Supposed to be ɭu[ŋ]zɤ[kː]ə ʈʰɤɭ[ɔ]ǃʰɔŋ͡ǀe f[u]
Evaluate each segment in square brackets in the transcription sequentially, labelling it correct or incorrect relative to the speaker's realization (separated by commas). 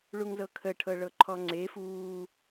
correct, incorrect, incorrect, incorrect